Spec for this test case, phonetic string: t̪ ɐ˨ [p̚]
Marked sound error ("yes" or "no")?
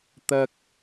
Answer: yes